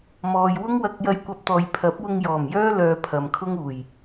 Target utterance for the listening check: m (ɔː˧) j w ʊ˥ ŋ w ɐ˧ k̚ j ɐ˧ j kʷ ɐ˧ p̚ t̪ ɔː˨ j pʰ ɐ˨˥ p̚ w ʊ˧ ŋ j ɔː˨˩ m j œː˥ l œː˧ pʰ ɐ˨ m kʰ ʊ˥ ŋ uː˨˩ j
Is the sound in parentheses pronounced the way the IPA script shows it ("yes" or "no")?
no